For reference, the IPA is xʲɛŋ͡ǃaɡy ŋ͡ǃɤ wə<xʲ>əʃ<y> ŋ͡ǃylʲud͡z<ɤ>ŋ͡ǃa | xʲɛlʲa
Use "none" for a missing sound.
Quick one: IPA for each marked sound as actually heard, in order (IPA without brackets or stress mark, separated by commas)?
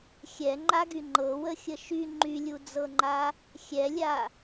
xʲ, y, ɤ